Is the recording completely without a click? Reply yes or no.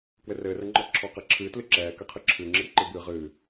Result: no